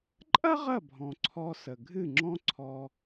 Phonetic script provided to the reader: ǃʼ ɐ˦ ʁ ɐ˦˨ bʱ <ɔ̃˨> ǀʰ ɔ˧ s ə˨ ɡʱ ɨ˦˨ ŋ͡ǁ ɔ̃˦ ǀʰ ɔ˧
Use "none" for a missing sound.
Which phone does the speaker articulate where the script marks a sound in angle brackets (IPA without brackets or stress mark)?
ɔ̃˨